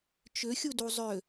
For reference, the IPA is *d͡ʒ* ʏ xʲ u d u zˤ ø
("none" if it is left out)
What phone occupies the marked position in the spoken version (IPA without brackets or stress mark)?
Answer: t͡ʃ